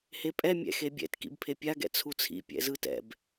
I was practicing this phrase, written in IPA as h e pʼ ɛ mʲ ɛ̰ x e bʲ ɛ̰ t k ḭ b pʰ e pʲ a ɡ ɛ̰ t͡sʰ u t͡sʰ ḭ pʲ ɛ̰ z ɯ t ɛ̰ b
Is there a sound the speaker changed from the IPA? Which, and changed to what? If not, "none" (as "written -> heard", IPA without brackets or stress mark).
none